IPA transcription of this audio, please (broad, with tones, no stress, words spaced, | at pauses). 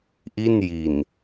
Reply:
ʔi˥˩nji˨˩n